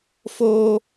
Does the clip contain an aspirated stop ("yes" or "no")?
no